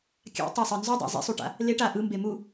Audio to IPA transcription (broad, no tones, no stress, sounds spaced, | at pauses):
kʲ a̰ tˤ a sˤ ɯ n z u dˤ a̰ zˤ ḛ sˤ u ʈ a̰ | l e ʈ a ʔ ɯ m b e m u